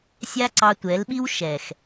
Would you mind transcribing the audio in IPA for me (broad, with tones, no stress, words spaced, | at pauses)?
sʲa˦ǀɑ˧tʷɛ˨˦lɓi˦w ʃɛ˨x